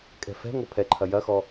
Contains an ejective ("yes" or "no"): yes